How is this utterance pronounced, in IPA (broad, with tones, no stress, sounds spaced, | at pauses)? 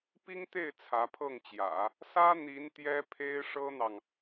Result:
p i˥ ŋ t̪ e˥˩ ɪ̯ t͡sʰ ä˧˥ pʰ ɤ˥˩ ŋ t͡ɕ j ä̰˨˩˦ | s ä˥ n̪ i˧˥ n t̪ j ɛ˥ pʰ e˥ ɪ̯ ʂ ɤ˥ n̪ ɑ˨ ŋ